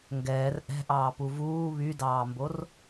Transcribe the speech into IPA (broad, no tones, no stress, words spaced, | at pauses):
ŋɡɛːr ʔɛ̤ʔɑːpu vuː βydɑːmbor